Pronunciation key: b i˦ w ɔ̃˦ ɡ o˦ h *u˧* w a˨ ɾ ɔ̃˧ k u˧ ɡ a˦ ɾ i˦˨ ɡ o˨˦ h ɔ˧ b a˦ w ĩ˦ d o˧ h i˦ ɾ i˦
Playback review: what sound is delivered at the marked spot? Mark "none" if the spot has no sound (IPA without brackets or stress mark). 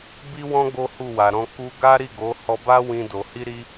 u˦˨